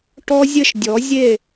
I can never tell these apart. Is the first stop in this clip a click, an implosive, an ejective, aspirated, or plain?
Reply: plain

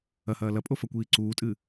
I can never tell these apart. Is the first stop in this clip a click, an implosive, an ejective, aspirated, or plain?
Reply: ejective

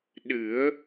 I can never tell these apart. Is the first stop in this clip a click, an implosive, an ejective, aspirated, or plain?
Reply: implosive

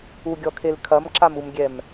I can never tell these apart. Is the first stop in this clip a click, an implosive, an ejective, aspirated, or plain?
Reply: plain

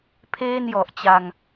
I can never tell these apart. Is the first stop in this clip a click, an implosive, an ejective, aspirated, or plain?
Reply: aspirated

